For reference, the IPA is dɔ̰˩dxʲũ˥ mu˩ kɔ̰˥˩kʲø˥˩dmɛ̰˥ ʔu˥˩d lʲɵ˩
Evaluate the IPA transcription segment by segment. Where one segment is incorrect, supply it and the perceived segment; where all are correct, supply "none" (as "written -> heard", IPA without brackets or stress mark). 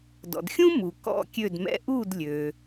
ɵ˩ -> ø˩